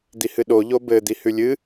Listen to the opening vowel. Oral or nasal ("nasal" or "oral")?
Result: oral